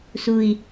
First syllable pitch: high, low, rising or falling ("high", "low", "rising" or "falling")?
low